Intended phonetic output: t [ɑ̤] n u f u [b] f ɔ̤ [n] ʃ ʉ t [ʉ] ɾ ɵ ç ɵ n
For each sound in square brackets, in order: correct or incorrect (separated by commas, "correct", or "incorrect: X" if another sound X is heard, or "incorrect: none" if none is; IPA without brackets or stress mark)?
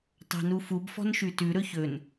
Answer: correct, correct, correct, correct